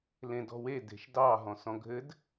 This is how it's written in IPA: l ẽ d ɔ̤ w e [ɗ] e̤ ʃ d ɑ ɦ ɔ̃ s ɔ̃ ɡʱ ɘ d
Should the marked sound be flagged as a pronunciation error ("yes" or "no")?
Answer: yes